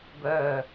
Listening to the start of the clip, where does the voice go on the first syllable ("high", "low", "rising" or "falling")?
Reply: low